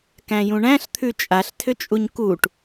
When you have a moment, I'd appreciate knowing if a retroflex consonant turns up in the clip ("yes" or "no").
yes